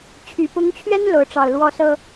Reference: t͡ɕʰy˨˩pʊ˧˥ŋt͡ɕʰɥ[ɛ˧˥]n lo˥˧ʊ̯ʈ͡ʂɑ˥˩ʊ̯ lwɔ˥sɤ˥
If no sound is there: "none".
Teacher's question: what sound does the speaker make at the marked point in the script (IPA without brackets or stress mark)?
ɛ˥